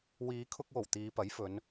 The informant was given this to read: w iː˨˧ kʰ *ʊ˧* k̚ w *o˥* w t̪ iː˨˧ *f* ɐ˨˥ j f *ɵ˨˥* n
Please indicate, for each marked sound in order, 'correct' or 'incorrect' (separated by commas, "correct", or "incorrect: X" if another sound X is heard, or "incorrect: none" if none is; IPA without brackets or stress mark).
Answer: correct, incorrect: o˨˩, incorrect: p, incorrect: ɵ˨˧